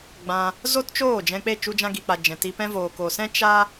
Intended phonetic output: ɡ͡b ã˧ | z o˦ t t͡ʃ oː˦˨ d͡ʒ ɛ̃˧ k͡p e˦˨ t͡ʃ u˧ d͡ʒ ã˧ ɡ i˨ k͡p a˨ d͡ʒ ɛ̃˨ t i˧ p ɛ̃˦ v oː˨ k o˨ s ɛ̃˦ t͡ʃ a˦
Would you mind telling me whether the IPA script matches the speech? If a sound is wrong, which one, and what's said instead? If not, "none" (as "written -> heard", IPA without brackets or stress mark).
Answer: none